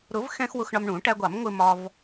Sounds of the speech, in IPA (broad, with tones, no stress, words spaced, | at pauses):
ɾʊ˨˩˦vxɛ̃˧x wʊ˧xɳɒ˧mɳũ˨˩˦ ʈæ˧ɡʷɑ˨˩˦m ŋʷɪ˧mɒ˧v